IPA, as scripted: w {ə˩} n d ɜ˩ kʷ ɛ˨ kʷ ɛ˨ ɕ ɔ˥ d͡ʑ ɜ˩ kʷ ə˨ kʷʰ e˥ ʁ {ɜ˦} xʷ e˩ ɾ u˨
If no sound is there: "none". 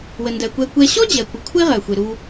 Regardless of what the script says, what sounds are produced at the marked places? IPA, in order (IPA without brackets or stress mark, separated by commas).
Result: ə˩, ɜ˩